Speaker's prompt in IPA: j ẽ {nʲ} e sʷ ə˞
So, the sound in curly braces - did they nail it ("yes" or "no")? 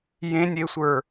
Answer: yes